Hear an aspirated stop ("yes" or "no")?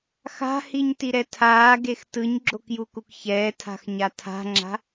yes